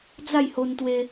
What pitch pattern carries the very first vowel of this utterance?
falling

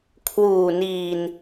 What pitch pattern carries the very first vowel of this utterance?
low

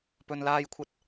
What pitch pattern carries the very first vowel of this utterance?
low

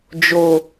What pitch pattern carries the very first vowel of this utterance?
low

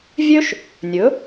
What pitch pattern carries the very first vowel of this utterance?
high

